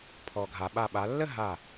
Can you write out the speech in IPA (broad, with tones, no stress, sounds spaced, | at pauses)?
pʰ ɔ˩ ɡʱ a˩ ɓ a˧˩ ɓ a˩˧ lː ə˥˧ ɦ a˧˩